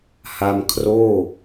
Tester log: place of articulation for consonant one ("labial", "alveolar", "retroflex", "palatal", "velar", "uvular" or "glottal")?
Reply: glottal